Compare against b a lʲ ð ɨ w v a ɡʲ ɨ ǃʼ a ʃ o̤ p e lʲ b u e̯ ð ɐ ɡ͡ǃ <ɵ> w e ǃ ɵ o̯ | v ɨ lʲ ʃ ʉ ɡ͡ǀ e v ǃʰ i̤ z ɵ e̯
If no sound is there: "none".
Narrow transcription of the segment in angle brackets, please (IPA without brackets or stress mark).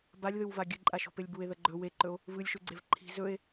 ɵ